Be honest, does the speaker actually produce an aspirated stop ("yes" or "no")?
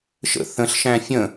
no